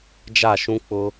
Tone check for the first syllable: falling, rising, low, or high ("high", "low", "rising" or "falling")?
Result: falling